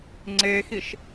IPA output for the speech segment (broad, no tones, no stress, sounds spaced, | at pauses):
ŋ͡ǀ e x i ʃ